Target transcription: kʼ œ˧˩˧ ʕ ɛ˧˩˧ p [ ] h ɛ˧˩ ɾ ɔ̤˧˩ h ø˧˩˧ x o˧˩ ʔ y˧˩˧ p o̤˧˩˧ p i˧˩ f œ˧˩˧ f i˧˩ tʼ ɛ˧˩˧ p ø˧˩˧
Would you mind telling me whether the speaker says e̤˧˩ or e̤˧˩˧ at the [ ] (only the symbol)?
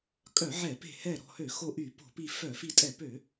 e̤˧˩